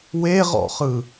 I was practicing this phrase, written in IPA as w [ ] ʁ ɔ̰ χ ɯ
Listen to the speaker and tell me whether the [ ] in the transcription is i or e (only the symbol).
e